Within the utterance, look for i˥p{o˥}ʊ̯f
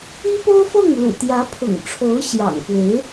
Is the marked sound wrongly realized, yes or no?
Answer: no